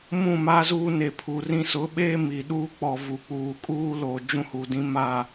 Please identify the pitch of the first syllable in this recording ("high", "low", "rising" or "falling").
falling